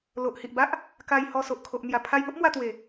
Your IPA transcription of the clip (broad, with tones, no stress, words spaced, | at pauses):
lo˨ʔhi˨ʔba˦ʔ | ka˧j hɔ˧ so˨ʔkʰo˨ʔ n̪ja˨˩pʰa˧jŋo˦ʔmwa˧ t̪we˨˩